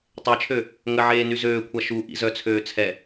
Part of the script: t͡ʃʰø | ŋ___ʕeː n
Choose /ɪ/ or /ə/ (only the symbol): ə